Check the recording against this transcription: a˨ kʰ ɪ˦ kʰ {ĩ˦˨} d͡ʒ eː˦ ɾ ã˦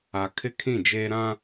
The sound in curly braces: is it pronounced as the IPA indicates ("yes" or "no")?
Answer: yes